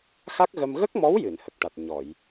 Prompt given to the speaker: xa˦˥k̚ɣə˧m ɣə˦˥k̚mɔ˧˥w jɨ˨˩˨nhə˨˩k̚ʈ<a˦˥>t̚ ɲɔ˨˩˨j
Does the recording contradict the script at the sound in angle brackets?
yes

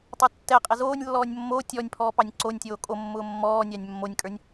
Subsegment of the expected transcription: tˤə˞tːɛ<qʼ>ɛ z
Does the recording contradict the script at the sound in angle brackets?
no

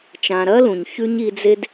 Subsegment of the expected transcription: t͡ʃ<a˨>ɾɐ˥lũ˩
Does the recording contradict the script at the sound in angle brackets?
yes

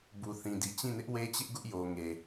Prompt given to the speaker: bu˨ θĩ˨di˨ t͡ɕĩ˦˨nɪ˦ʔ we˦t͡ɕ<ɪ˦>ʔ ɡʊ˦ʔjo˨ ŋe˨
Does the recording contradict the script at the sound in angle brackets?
no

